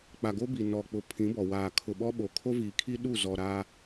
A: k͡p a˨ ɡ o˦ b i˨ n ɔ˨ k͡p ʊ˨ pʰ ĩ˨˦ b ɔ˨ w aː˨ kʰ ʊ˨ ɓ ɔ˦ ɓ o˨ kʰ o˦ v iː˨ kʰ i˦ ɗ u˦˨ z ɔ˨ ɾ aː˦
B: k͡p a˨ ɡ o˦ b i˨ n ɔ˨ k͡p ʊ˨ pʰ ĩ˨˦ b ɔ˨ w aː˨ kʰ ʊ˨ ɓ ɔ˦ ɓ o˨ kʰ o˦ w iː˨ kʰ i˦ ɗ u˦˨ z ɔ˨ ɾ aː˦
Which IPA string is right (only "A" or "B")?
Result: A